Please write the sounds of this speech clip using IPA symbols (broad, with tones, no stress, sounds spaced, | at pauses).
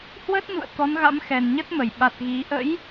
h w ə˦˥ t̚ n ṵ˧˨ ə̯ t̪ ɔ˨˦ n ɣ a̰˧˥ m x ɛ˨˩ n ɲ ə˦˥ t̚ m ə˧˩ j ɓ a˨˩ t̚ ɣ i˨˦ ʔ ə̰˧˥ j